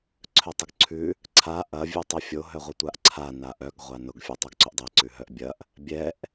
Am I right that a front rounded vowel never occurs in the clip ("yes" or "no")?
no